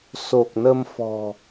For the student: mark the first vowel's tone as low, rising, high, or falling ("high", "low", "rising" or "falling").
low